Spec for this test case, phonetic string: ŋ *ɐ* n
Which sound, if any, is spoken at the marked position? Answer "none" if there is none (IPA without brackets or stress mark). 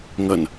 ɐ